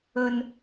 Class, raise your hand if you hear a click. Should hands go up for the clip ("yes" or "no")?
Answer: no